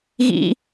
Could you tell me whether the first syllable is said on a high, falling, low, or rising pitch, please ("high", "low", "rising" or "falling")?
high